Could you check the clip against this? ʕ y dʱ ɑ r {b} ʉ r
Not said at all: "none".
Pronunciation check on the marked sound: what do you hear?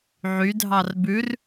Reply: b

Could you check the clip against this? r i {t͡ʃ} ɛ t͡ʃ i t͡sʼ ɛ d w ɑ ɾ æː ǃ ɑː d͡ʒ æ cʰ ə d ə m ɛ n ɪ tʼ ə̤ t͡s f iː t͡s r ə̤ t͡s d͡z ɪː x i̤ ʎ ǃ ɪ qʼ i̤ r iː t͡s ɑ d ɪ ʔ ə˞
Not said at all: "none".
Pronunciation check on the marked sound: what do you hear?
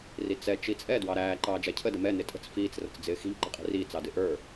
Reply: t͡s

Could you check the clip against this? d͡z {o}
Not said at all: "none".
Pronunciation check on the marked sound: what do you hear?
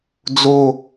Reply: o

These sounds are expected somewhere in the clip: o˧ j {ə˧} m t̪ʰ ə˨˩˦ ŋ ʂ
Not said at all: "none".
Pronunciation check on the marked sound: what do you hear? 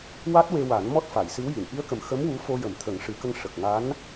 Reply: ə˨˩˦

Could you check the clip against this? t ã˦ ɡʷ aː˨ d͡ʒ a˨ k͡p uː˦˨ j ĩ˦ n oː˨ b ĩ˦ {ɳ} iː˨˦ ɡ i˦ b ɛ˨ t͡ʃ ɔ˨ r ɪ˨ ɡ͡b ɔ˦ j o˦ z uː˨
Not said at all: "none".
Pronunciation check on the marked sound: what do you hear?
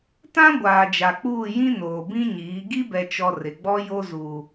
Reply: ɲ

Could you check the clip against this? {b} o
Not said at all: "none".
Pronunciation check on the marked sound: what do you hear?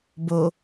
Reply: b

